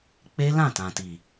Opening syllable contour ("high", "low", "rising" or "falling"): high